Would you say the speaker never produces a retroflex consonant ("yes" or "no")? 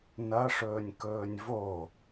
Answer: no